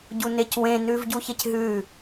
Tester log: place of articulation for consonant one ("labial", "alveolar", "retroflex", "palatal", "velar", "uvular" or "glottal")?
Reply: palatal